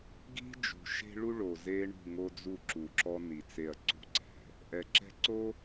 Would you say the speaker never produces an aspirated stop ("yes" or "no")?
yes